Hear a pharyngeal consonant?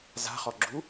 no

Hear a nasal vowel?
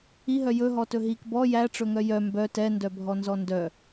no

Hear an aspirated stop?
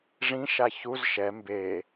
no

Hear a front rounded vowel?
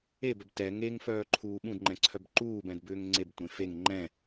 yes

